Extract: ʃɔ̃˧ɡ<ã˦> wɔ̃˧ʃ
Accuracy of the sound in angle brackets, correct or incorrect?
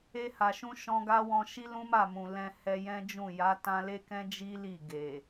incorrect